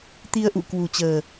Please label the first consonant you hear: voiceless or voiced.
voiceless